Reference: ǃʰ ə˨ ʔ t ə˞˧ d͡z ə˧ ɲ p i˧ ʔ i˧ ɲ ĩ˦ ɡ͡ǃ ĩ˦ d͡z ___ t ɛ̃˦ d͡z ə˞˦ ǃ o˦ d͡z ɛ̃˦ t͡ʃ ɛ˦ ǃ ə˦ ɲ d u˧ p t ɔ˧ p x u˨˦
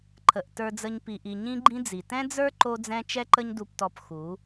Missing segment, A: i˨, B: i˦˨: A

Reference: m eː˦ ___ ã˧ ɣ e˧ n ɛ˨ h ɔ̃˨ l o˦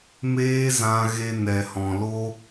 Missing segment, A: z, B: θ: A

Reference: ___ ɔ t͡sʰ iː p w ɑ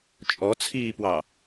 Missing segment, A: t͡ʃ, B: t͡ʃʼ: B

